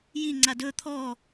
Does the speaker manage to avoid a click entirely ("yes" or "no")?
no